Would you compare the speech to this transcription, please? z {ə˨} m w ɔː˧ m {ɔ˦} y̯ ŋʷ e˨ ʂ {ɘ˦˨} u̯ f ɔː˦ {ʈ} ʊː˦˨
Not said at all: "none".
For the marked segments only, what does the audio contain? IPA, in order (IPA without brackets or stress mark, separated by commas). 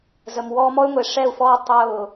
ə˨, ɔ˦, ɛ˦˨, tˤ